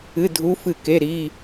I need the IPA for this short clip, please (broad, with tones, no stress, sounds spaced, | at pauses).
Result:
ɨ˧˥˧ dʱ u˧˥ f ɨ˦˨ k e˧˥˧ ɾ i˧˥˧